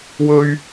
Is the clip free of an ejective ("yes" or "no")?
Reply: yes